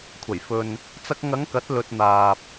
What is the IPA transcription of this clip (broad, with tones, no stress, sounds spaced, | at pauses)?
kʷʰ ɐ˨˩ j f ɵ˨ n | t͡s ɐ˧ k̚ ŋ ɐ˨˧ ŋ k ɐ˨˥ t̚ l ɵ˨ t̚ n̪ aː˨ p̚